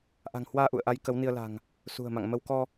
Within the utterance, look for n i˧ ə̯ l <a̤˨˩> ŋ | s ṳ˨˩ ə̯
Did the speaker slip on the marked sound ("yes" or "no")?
no